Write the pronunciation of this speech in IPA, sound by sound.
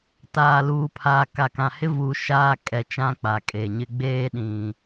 t aː˨ l uː˨ pʰ aː˨ k a˨ k ã˨ h ɪ˦ v u˨ ʃ aː˦ kʼ ɛ˨ t͡ʃ ã˦ k͡p a˨ kʼ e˨ ɲ ɪ˦ ɡ͡b eː˦ ɗ ĩ˨

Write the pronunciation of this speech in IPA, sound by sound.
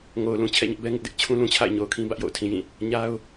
ŋ o˨ ʊ̯ l ũ˨ t͡ɕʰ ɛ̰˦˨ ɲ ɪ˦ ʔ b ɛ˦ ŋ ɪ˦ ʔ d ɪ˦ ʔ t͡ɕʰ ũ˦ l ũ˨ t͡ɕʰ a̰˦˨ ɪ̯ ɲ o˨ ʊ̯ kʰ ĩ˦ b ä˦ ʔ j o̰˦˨ ʊ̯ tʰ ĩ˨ j ĩ˦˨ | ɲ a˦ ʊ̯

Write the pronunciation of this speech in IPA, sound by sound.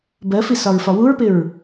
b ɜ f i s ɒ ɹ f ɒ w u ɹ p ɪ ɹ

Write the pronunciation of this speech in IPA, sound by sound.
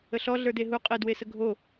ə ɬ ɔ ɮ ə˞ d e ɦ u qʼ e d w e s ə ɡʱ o

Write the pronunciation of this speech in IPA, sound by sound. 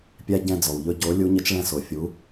pʲ æ˦ ɟ ɛ̃˦˨ d͡z ɔ˩ w ʎ ɵ˦˨ ɟ o˨˦ lʲ u˨˦ ɲ ə˨˦ t͡ʃ ɭ ɛ̃˦˨ s o˩ fʲ u˨˦

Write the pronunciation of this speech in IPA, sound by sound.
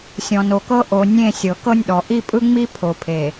sʲ ɔ̃˨ n o˨ k ɤ˦ ʔ o˨ nʲ ẽ˦˨ sʲ ɤ˨ k ɤ˦ nʲ ɗ ɔ˨ ʔ i˦˨ pʼ ɯ˦ ŋ͡m i˦ pʰ o˨ pʰ e˨

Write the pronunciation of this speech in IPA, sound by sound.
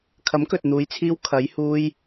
kʰ ɐ˨˥ m k ɵ˨ t̚ n̪ uː˨˧ j t͡sʰ iː˧ w kʰ ɐ˨˧ j h uː˧ j

